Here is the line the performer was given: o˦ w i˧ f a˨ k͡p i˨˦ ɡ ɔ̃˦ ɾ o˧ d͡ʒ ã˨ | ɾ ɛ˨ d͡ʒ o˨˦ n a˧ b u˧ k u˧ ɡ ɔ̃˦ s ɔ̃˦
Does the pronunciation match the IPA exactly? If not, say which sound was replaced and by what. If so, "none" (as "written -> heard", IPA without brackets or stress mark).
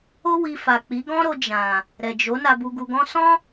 k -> ɡ